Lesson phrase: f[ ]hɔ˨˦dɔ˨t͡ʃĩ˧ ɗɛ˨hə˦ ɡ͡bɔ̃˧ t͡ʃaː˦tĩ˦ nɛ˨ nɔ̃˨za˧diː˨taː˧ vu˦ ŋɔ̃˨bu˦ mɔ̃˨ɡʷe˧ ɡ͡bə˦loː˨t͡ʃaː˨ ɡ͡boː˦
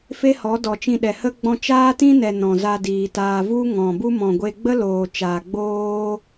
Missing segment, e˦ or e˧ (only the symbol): e˦